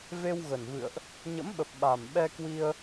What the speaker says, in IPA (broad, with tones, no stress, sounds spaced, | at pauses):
v e˧ w ɣ ə˨˩ n v ɨ̰˧˨ ə̯ ʔ | ɲ ə̰˧˥ m ɓ ə˨˩ p̚ ɓ a˨˩ m ɓ ɛ˧ k w i˧ ə̯